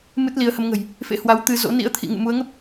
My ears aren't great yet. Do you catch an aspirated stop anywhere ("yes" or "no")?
yes